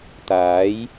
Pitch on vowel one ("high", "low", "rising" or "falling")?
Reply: rising